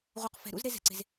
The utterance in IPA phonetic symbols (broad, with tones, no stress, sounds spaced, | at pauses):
ʁ u˨ q f ɛ̤˨ ɾ ṵ˦ z ɾ e˦ z ɛ̤˨ ǀ e̤˨ z